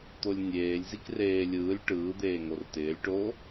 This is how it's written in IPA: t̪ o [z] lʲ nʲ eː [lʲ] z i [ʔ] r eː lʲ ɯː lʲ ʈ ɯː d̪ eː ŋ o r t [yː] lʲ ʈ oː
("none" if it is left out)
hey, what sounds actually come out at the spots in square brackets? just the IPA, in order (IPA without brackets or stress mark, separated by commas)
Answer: none, lʲ, k, ɪː